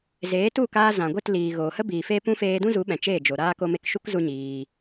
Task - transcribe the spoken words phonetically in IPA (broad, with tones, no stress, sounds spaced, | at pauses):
z eː˨˦ t u˦˨ k aː˧ z ã˨ ɡʷ e˦˨ t l iː˨ ɣ oː˨ h ə˦ b iː˨ f eː˧ p ũ˧ f eː˧ d ũ˦ z u˨˦ ɓ ɛ̃˨ t͡ʃ eː˦˨ d͡ʒ o˨ ɾ aː˧ k o˧ m e˧ k ʃ u˦ k z u˦ ɲ iː˧